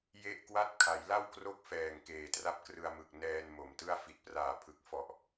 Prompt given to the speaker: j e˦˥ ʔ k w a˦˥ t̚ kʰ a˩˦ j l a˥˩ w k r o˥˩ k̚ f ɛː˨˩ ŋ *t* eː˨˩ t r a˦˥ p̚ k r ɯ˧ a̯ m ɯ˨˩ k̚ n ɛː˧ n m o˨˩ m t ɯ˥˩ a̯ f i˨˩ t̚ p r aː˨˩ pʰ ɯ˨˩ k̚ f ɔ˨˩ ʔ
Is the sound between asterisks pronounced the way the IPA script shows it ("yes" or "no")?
no